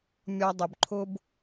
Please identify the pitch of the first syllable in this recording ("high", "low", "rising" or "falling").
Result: high